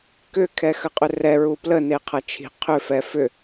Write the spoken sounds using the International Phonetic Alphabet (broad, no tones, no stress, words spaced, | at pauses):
kʏ kʰɛxəqʼʏrɛ ɹuplə neqʰɐt͡ʃʰi̤ qʰʏ fɛfʏ